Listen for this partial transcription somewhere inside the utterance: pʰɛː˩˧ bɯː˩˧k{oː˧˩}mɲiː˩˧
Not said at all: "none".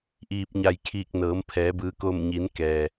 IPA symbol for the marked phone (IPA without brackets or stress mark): oː˧˩